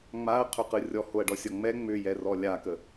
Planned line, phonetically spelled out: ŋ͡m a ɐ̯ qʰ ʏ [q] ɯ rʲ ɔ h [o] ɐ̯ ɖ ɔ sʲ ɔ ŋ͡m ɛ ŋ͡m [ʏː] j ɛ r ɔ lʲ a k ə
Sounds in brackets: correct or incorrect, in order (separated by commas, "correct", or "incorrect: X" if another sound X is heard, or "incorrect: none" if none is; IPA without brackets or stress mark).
correct, correct, incorrect: ʏ